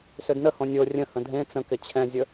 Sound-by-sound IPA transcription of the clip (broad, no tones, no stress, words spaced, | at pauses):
sʏdnə hõnʲo rʲə̃ hə̃dʱẽ t͡sə̃kɪ t͡ɕʰɛ̃zʲə